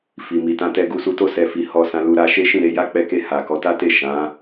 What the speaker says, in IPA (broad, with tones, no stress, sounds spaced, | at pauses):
f i˨ m i˨ t ã˧ t ɛ˧ ɡ u˧ s u˧ t o˦ s ɛ˧ f i˧ h ɔ˧ s ã˧ l u˧ ɾ a˧ ʃ e˦ ʃ ĩ˦˨ ɾ e˧ j a˦ k͡p ɛ˧ k e˧ h a˨ k ɔ˨˦ t a˦ t e˦˨ ʃ ã˨˦